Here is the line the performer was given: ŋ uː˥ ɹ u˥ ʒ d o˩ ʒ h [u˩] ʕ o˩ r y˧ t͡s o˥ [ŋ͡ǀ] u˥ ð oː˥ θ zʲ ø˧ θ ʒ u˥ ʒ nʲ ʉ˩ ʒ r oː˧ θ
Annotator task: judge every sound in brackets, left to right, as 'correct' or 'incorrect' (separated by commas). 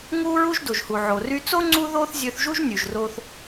correct, correct